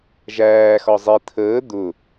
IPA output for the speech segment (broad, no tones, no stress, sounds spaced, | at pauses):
ʒ æː x ɒ zˤ i t̪ʰ əː d̪ ʊ